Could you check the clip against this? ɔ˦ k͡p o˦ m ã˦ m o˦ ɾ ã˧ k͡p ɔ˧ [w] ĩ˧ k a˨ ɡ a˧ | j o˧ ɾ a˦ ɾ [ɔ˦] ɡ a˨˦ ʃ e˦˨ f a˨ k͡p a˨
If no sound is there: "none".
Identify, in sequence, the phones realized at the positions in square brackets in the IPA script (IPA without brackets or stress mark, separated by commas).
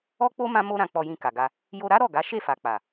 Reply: j, ɔ˦˨